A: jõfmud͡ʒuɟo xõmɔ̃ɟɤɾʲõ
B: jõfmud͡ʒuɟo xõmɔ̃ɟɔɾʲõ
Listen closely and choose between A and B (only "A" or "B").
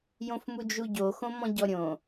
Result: B